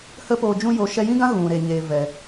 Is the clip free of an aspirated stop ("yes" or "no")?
yes